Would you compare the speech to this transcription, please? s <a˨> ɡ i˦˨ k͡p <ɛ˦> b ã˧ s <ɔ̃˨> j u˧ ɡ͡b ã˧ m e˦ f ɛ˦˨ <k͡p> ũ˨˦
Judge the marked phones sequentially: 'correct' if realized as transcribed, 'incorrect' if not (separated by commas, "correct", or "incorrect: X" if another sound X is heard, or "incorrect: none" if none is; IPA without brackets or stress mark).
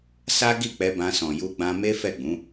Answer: incorrect: a˦, incorrect: ɛ˧, correct, incorrect: ɡ͡b